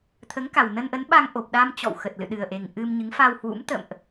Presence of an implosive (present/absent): present